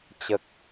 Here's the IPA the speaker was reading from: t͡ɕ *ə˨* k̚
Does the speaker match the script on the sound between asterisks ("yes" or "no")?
yes